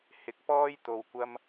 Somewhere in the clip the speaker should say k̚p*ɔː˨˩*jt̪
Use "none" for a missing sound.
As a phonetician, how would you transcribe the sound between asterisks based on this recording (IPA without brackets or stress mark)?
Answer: ɔː˥